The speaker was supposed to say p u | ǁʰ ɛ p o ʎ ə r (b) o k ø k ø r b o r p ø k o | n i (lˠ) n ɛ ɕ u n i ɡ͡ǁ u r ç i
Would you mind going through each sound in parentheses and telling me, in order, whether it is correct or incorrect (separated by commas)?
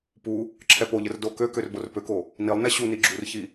incorrect, correct